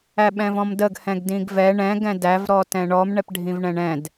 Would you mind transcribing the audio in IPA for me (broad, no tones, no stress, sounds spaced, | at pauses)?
æ ɓ ɛ̃ v ɔ̃ m d ə ɡ h ɛ̃ ɡ d ĩ ɡ v ɛ ɳ ɛ̃ ɡ ɛ̃ d æ v ɾ ɔ t ɛ̃ ɳ ɔ m ɳ ɛ p ɖʱ ĩ v ɳ ɛ̃ ɳ ɛ̃ d